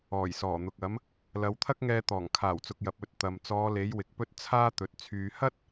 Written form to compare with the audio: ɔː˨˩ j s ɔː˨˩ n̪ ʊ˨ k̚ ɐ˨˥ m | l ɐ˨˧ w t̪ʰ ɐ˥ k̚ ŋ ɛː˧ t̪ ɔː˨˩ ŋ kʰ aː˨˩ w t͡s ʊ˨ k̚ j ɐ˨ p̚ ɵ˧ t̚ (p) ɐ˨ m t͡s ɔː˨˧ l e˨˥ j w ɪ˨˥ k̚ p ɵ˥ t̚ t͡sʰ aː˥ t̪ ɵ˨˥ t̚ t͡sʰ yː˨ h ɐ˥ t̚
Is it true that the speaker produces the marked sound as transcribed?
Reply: no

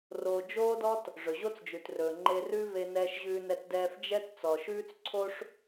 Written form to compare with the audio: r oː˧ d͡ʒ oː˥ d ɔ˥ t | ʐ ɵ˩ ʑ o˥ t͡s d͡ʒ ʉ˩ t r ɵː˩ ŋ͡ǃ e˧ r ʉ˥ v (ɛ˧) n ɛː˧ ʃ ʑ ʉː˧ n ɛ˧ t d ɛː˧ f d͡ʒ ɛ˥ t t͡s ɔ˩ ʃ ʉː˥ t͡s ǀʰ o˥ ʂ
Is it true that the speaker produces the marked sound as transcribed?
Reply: no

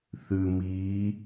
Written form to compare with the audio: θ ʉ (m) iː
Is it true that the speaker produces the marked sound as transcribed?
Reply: yes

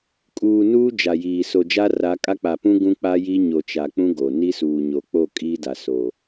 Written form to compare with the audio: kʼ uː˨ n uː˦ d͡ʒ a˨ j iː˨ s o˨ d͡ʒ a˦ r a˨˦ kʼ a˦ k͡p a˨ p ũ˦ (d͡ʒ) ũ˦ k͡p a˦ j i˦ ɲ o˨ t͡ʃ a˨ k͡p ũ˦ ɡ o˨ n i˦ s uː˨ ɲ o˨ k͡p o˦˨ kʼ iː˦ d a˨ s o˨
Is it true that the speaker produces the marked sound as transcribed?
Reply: no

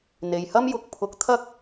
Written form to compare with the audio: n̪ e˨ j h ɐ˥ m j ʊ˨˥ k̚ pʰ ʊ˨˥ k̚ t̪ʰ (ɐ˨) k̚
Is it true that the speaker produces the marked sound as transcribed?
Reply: no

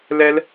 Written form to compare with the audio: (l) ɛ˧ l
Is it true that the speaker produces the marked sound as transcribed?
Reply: yes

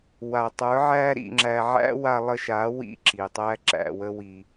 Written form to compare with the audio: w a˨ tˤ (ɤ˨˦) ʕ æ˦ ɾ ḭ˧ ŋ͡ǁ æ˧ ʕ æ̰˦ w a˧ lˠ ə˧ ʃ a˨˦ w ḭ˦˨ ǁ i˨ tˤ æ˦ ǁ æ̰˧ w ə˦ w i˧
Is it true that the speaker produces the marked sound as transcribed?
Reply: no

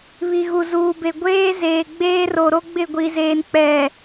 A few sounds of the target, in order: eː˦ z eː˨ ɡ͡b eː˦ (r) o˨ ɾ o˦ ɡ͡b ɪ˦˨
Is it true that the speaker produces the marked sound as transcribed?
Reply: yes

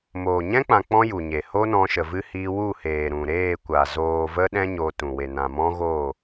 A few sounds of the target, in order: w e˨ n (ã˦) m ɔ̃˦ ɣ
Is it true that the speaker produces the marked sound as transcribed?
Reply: no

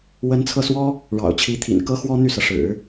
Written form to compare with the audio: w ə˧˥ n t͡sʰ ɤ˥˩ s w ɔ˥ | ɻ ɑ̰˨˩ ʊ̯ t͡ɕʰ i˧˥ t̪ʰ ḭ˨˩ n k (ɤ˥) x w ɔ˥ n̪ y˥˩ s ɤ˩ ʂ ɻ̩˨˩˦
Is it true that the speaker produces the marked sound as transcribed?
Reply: yes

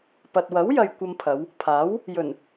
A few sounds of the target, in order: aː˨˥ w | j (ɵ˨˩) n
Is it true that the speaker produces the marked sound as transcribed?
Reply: yes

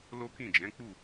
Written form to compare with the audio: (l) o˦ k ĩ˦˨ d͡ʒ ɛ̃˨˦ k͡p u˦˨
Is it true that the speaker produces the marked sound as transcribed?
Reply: yes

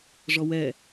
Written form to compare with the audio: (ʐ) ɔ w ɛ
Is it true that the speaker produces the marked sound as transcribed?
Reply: yes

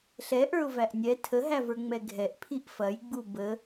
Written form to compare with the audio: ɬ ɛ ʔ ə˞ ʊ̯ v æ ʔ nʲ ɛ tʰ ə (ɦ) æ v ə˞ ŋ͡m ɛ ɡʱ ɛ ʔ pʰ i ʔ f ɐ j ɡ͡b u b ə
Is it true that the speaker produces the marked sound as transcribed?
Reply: yes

